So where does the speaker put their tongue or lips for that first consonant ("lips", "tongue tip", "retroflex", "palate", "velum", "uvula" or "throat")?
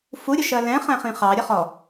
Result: lips